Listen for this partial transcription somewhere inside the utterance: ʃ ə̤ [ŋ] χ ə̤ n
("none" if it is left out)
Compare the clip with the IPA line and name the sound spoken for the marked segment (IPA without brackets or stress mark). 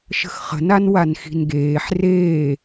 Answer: x